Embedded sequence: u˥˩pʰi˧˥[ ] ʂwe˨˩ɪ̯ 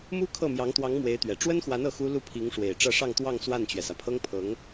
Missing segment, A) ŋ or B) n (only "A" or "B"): A